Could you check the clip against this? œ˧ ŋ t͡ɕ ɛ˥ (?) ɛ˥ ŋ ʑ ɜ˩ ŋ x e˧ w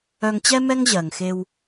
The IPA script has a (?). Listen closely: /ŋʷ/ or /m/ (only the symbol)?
m